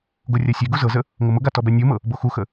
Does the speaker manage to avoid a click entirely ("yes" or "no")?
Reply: yes